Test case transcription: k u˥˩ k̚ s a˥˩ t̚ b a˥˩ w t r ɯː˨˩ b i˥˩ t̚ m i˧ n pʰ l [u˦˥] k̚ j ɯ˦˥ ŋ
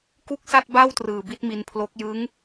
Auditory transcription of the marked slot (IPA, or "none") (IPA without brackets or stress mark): o˦˥